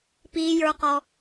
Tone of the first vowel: high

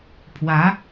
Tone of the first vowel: rising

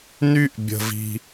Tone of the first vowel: high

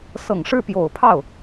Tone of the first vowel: low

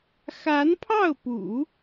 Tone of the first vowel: rising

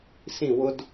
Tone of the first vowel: falling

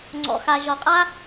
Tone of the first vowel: low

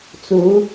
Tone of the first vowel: rising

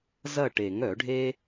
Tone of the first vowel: falling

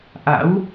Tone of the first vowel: rising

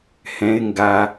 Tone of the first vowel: high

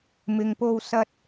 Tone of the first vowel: low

